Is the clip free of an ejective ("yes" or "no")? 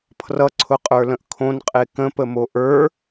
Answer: no